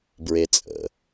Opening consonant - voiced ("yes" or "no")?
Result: yes